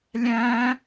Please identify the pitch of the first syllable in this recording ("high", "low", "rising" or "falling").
high